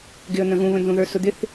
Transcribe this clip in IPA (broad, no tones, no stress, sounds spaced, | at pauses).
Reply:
ɡ ɪ ə̯ n̪ ə̃ ɣ ũ β ə̃ n z ũ ð ə˞ s ʊ d̪ ɪ θ